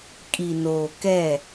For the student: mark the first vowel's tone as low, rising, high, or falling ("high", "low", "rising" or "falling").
low